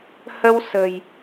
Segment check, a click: absent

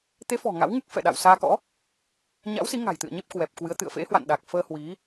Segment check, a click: absent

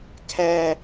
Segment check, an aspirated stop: present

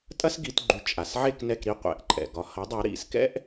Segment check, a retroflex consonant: absent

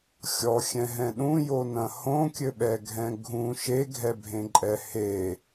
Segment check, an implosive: present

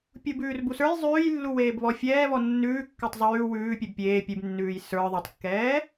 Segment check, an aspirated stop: absent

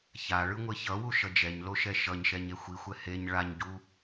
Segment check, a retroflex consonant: present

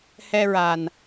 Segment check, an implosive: absent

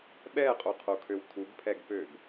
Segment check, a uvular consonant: present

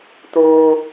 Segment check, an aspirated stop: absent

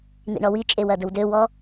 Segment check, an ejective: present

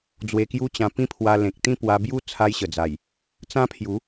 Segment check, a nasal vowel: present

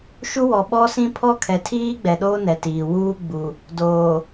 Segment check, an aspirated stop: present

